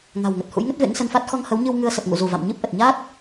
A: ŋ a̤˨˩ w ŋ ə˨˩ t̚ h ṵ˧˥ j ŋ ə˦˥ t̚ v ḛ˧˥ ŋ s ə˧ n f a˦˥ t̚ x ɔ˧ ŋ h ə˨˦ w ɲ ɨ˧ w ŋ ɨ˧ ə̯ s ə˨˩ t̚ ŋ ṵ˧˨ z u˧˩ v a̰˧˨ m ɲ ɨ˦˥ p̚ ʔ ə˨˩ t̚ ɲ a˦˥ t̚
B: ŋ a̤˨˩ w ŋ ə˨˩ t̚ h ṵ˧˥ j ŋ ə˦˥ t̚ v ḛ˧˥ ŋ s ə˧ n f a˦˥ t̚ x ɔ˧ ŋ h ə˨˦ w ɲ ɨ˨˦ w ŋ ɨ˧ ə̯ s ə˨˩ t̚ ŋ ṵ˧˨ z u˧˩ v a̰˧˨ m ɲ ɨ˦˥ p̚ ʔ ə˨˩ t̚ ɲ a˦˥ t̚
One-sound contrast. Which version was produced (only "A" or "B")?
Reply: A